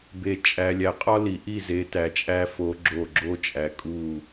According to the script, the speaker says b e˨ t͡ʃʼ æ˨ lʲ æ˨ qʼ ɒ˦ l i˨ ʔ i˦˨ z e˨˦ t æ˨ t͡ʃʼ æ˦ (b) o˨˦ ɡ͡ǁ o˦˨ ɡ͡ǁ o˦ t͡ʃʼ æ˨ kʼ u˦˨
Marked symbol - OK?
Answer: no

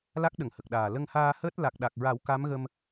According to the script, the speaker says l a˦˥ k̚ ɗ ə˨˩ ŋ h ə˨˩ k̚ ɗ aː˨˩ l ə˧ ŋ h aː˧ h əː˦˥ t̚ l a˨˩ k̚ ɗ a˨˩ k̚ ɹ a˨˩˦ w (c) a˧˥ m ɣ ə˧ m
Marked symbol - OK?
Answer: no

